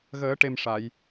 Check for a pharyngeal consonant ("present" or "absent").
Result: absent